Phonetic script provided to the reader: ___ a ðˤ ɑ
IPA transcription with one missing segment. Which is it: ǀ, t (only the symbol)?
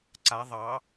ǀ